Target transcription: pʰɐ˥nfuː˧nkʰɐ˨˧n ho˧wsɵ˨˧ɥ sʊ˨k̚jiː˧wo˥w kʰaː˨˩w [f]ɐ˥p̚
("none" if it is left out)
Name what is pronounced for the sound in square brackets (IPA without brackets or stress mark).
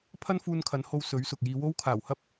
h